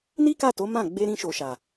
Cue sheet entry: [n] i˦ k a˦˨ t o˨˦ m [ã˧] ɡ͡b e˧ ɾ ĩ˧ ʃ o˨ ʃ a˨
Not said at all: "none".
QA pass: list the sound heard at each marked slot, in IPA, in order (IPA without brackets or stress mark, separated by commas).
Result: n, ã˦˨